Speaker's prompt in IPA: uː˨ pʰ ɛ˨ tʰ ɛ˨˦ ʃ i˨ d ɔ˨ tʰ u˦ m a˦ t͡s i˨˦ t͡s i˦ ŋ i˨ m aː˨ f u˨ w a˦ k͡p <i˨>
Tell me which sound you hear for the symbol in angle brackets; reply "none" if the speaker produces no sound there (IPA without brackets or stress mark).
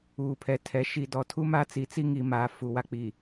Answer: i˨